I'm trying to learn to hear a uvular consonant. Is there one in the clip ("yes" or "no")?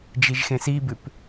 no